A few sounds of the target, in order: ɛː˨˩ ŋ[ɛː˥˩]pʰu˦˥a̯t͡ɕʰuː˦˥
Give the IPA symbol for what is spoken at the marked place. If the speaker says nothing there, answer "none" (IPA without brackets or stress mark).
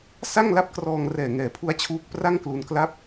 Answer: ɛː˨˩